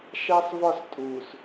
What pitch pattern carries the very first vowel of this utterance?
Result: high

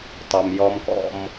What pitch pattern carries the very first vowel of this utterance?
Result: low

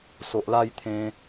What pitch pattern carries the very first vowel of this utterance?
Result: low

